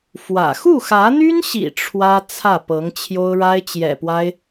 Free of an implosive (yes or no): yes